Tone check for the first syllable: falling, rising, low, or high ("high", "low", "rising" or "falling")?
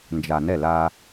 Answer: low